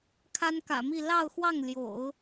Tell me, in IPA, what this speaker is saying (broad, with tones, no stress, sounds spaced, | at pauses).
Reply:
kʰ a˥ n k ä̰˨˩ m i˥˧ l ɑ˥˧ ʊ̯ x w ɑ˥˩ ŋ l j o̰˨˩˦ ʊ̯